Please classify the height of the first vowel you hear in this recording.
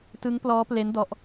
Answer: high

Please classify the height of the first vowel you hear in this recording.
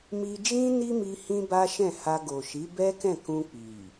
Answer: high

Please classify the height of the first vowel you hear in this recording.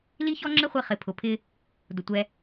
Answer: high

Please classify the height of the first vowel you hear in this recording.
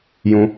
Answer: high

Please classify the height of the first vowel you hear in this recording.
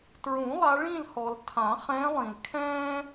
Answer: high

